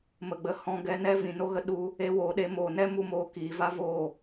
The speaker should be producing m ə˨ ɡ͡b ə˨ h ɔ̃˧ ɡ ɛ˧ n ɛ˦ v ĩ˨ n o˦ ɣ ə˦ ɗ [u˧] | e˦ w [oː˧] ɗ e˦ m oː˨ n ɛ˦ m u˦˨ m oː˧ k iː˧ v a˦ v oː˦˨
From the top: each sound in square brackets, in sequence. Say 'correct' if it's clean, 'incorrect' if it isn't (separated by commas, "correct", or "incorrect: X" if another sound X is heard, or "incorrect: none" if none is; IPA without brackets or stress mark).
correct, correct